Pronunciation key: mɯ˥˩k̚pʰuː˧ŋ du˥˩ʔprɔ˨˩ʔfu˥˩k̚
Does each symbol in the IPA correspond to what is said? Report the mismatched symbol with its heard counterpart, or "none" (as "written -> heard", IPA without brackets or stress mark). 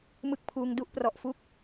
none